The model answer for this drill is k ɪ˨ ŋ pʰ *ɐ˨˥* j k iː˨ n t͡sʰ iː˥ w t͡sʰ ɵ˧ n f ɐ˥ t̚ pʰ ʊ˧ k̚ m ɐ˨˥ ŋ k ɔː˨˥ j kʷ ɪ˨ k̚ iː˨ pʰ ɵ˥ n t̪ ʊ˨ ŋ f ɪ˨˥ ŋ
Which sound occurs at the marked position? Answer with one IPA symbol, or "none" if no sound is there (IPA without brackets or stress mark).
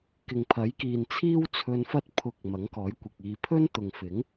ɐ˨˥